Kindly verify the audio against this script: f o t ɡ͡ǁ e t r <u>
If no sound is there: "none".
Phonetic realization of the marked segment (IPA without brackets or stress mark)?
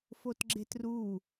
u